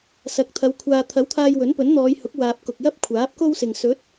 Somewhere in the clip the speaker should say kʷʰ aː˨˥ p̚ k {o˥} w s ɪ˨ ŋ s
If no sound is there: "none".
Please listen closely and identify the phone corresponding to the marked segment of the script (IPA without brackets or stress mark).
o˥